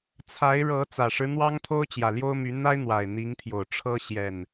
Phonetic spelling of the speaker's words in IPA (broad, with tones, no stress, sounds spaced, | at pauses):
t͡sʰ a˨˦ ɪ̯ ɻ ɤ˨˦ t͡s ä˨˩ ʂ ɻ̩˦ n̪ w ɑ˦ ŋ t̪ʰ o˦ ʊ̯ t͡ɕ j ä˨˩ l j o˦ ʊ̯ m y˨˦ n̪ a˦ ɪ̯ n̪ w a˨˩ ɪ̯ n̪ i˨˦ ŋ t̪ʰ j o˨˩ ʊ̯ ʈ͡ʂʰ ɤ˦ ɕ j ɛ˨˩ n